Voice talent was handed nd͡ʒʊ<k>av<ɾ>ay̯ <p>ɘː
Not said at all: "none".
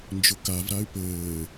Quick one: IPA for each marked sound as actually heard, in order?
k, ɾ, p

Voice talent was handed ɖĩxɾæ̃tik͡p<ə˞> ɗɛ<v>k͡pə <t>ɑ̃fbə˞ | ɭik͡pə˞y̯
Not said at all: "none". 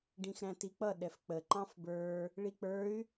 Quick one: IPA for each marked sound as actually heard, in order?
ʌ, f, ǃ

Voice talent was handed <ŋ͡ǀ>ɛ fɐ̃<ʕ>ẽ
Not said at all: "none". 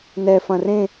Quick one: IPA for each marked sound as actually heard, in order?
n, r

